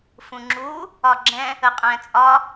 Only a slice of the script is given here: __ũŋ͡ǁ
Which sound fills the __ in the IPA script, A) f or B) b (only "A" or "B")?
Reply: A